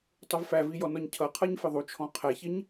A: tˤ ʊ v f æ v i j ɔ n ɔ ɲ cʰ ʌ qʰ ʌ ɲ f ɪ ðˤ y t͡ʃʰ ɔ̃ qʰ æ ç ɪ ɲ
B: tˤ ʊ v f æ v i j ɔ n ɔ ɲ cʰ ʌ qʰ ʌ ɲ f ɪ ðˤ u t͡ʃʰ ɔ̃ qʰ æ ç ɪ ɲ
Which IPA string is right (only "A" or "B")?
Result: B